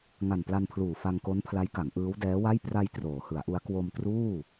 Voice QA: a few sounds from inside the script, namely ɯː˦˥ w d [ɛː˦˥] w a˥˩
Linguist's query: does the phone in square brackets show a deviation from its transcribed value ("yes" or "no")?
no